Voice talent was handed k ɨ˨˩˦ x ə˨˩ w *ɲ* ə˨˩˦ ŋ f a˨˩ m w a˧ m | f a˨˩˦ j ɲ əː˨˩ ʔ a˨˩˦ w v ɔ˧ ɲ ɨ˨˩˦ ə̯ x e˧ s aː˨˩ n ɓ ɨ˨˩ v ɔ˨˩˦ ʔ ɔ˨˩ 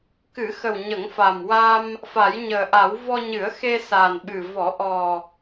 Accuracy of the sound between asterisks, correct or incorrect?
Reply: correct